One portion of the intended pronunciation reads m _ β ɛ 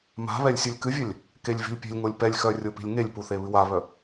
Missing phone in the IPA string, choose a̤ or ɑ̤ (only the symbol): a̤